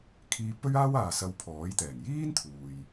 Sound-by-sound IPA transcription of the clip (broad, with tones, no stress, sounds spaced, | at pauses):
kʰ iː˧ p ɵ˥ ɥ aː˥ w aː˨ s ɐ˧ w pʰ ɔː˨˥ j t̪ ɛː˨˩ ŋ j iː˥ n t̪ʰ uː˨ j